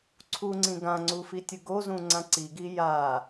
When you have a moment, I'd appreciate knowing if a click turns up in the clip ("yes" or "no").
yes